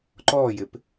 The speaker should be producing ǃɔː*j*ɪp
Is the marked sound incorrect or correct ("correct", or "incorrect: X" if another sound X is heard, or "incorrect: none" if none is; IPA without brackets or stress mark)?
correct